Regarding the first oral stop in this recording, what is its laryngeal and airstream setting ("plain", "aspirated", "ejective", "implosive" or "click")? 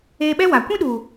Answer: implosive